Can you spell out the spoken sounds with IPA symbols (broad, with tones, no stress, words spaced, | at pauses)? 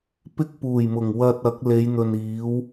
pɪ˥k̚ puː˨˩jmʊ˨˩ŋ wɐ˧t̚ ɐ˨˥k̚ le˨˧jn̪ɵ˨n iː˨˥w